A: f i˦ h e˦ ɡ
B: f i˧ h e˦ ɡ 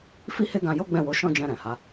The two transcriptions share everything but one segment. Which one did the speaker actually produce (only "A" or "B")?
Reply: A